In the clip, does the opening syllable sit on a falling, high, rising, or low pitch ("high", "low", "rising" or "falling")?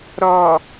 low